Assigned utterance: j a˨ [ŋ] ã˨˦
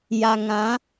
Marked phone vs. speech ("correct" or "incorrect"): correct